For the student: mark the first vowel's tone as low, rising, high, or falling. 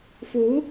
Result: rising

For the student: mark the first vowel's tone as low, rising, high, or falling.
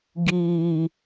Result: low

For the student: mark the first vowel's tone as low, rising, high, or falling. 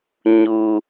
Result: high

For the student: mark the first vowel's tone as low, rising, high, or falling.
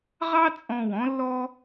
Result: high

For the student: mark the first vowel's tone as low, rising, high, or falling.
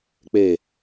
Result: low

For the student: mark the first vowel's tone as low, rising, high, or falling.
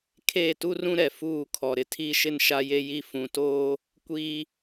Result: falling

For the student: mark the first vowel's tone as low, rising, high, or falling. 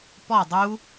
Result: falling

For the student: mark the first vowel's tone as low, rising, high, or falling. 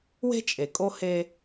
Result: high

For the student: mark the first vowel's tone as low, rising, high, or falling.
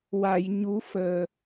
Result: low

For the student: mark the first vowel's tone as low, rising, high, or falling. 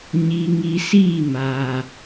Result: low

